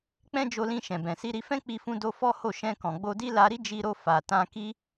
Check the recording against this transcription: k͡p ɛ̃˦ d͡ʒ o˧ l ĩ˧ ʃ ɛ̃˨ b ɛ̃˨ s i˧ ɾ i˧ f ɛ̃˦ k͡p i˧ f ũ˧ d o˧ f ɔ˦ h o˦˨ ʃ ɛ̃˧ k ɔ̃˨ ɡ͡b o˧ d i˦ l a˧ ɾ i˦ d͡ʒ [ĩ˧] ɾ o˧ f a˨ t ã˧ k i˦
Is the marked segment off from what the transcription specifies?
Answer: yes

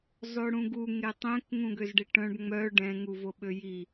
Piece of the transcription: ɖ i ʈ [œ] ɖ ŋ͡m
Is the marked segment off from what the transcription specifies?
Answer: yes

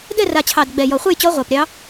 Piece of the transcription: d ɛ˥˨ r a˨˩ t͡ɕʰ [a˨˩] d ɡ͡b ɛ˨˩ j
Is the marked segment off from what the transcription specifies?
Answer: yes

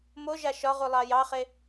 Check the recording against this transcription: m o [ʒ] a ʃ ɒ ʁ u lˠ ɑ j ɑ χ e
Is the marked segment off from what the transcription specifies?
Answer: no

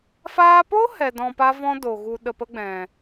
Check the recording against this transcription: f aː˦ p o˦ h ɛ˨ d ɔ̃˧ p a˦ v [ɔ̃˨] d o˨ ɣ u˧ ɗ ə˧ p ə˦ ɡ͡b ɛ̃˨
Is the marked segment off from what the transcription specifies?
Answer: yes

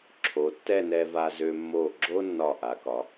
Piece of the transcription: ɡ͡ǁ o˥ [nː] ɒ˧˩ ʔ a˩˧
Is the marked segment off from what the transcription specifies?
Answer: no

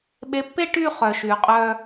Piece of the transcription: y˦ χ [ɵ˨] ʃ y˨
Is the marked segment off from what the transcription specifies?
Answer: yes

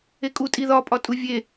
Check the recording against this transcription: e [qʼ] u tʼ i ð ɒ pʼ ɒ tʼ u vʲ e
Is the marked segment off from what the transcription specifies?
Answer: yes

